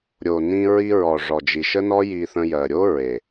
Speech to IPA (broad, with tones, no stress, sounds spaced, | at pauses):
ɾʲ o˨ n ĩ˧ ɹ i˧ ɹ ɔ˨ ʐ ɔ˨ d͡ʒ i˨ ʃ ə˦ n ɔ˦ j i˧ θ ə̃˧ j ɜ˨ ɾʲ o˦ ɹ e˨